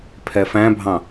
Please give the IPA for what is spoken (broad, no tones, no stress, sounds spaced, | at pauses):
pʰ ɛ f æ̃ bʱ ɑ̃